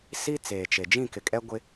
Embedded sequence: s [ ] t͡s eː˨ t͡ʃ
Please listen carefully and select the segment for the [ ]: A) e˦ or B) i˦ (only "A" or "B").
B